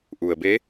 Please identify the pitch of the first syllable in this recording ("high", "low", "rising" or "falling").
low